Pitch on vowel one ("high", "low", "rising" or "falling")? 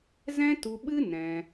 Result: high